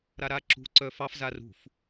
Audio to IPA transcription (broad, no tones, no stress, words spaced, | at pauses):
ɾaɾaǁṳ ǀœfɑf zarṳf